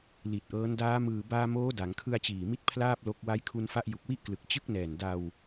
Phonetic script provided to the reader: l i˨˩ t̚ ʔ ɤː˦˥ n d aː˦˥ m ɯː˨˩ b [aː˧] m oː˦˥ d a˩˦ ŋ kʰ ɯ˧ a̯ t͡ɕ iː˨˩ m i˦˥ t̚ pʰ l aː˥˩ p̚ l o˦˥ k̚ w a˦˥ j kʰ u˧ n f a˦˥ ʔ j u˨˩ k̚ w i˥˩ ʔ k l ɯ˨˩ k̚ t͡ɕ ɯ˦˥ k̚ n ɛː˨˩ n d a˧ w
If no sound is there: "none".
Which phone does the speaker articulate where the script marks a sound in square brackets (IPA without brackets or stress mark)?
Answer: aː˧